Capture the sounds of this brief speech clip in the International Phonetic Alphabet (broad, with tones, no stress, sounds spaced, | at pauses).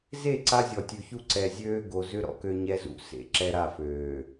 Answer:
z e˦˨ ǀ a˦ zʲ ɔ˨ tʲ ʉ˨ ç u˦ ǀ ɛ˨ zʲ øː˦ ɡ o˨ z ʏ˦ ɾ ɔ̰˨ k ø˦ ɲ ɛ˦ z ṵ˨ s ḛ˨ ǁ ɛ˦ ɾ a˦˨ f øː˨